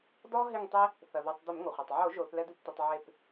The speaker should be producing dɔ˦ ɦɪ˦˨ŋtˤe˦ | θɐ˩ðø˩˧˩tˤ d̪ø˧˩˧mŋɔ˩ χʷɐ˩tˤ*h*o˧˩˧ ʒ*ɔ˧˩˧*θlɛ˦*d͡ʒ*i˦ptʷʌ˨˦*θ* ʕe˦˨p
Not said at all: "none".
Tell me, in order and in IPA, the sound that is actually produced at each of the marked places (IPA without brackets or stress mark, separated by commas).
ʕ, o˧˩˧, d̪, tˤ